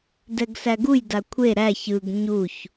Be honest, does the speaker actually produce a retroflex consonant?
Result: no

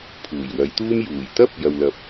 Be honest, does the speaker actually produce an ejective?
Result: no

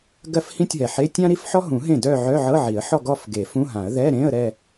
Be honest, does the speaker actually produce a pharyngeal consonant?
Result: yes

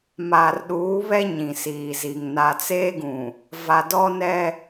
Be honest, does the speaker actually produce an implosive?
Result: yes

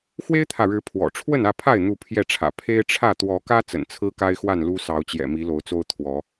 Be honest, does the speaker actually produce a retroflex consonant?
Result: yes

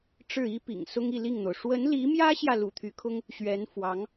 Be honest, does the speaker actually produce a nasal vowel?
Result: no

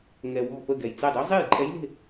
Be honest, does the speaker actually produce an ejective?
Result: yes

